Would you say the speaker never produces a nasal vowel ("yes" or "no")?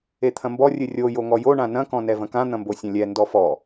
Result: no